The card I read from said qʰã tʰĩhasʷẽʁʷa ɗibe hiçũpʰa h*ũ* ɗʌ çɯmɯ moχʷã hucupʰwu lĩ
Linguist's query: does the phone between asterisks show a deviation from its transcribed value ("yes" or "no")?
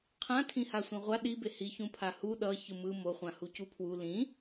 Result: yes